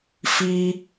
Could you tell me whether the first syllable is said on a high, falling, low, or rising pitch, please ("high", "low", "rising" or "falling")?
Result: high